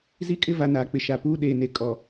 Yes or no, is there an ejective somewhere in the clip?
yes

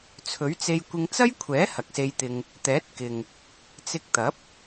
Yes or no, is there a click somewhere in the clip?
no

